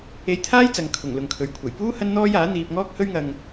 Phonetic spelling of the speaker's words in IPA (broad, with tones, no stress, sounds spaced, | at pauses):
e˧ j t̪ʰ aː˥ j t͡s ɐ˨ ŋ kʰ ʊ˨˩ ŋ l ʊ˨ ŋ kʰ ɵ˨ ɥ kʷʰ ɐ˨˩ j p uː˥ h ɐ˥ n n̪ ɔː˥ j aː˨˥ n̪ iː˧ p̚ ŋ ɔː˥ k̚ h ɵ˥ ɥ ŋ ɐ˧ ŋ